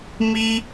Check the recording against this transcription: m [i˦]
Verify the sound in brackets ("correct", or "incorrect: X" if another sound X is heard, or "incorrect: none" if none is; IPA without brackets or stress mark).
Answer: correct